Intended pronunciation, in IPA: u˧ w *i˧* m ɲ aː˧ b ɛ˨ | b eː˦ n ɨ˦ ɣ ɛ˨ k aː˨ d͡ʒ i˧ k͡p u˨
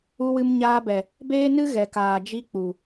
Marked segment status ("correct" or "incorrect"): incorrect